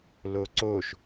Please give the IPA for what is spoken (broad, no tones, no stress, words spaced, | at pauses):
loǀoʃ